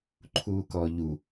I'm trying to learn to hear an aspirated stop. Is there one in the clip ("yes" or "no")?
yes